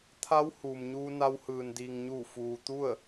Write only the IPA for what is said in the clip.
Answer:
t̪ʰa˧˥w huː˩mɲuː˧ na˧whɯː˩n diː˩ŋ ɲuː˧˩ fuː˩t̪u˥˨ə̯

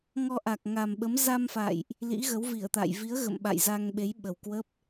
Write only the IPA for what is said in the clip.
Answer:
ŋɔ˧ ʔa˨˩k̚ŋa˨˩mɓə˨˦m za˧mfa̰˧˨jʔ | lḭ˧˥ɣə˨˦wvi˧˩ə̯t̪a̰ː˧˨j vi˨˦ə̯ ɣə̰˧˨mɓa̰˧˨jza˧ŋɓe˨˦j ɓə˨˩wkwə˦˥p̚

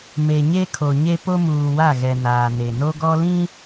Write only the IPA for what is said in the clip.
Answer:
me˨ ɲe˦kʰo˨ɲe˦ po˦muː˨wa˦˨ɣɛ˨ naː˨ne˨no˦ ɡɔ˦lĩ˦

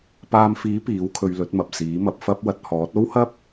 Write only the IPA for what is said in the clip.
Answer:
paː˧mfiː˨˥ piː˨˥wkʰɵ˧ɥlɵ˨˥t̚mɐ˨p̚ siː˨˥mɐ˧p̚fɐ˥p̚ wɐ˧t̚hɔː˨˥t̚ o˥whɐ˥p̚

